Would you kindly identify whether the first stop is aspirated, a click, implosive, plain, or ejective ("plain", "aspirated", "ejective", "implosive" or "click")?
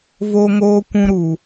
plain